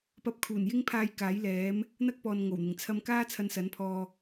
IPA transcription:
p ɐ˧ p̚ kʰ uː˨˩ n j ɪ˥ ŋ pʰ aː˧ j k aː˨˥ j l ɛː˨˥ m | n̪ ɐ˥ k̚ p ɔː˨ n ŋ o˨˩ w n̪ ɪ˨˩ ŋ t͡sʰ ɐ˧ m k aː˥ t͡sʰ ɐ˧ n s ɐ˨˥ n pʰ ɔː˧

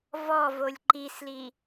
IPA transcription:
v ɔ v o lʲ ǃ i s l i

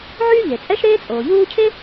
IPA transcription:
ʕ yː˥ ʎ e˩ t͡sʼ ɛ˥ ʃ ɾ eː˥ t͡sʼ oː˩ ʎ uː˥ cʰ e˥

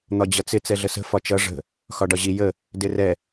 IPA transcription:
n̪ ɒ d͡ʑ ʌ t͡s ɪ t͡s ɛ ɮ ə s ə̤ f ɒ t͡ʃ ʌ ʐ ə̤ | x ɒ ɖ ɒ ʑ i j ə | d ɪ r ɛ

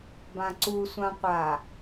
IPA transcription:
b ã ǀ u sʷ ã qʷ a

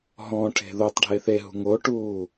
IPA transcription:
ɦ ɔ̃ ʈʰ e̤ ð o tˤ ɖʱ e θ e ɦ ṳ ŋ o ʈ uː

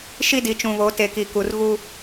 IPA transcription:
ʃ i˦ d i˨ t͡ʃ ũ˨ β o˨˦ t e˨ k i˨ k u˨ r ɣ u˦

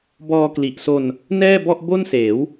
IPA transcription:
b ɔː˧ k l i˨˩ ʔ s o˧ n | n ɛː˥˩ b ɔ˥˩ ʔ b o˥˩ n s eː˩˦ w

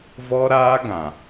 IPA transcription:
v ɔ˦ ɾ aː˦ ɡ ã˨

